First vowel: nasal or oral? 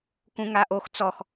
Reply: nasal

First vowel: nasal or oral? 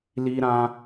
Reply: oral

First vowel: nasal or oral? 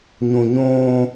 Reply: nasal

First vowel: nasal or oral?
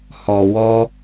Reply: oral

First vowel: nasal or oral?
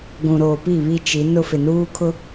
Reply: nasal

